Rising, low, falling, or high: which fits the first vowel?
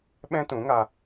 high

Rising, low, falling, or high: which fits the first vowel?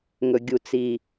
low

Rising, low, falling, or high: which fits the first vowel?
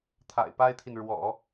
low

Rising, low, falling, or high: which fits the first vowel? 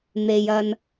low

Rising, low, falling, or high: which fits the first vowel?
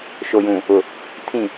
low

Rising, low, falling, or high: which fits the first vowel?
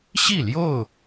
falling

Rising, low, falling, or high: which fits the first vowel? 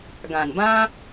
low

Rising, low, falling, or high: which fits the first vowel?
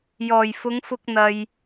low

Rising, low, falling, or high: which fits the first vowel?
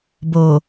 low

